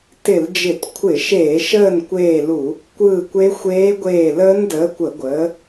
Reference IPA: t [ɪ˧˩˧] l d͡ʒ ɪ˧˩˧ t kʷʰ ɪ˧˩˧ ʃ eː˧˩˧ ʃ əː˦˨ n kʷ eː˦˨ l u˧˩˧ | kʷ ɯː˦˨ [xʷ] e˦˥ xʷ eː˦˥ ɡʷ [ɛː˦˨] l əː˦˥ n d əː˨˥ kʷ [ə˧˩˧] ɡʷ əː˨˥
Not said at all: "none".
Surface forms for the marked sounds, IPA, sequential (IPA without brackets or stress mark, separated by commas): ɪ˧˩˧, kʷ, eː˦˨, ə˧˩˧